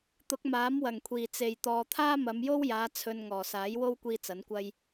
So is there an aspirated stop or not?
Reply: yes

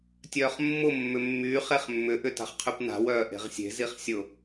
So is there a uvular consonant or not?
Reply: yes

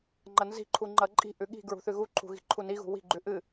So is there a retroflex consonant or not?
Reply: no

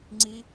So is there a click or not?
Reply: yes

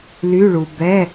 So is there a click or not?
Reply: no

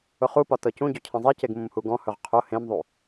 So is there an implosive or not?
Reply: no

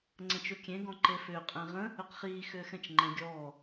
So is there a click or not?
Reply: yes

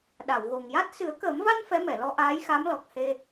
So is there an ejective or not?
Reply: no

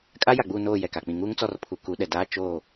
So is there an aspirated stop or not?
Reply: yes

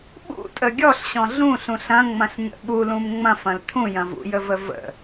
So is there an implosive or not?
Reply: yes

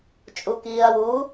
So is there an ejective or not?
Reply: yes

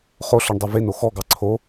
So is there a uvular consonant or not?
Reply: yes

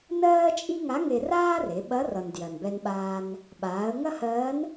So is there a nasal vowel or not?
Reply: no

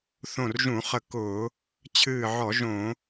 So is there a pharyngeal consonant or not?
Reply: yes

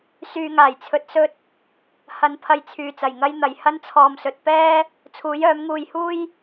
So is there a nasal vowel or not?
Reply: no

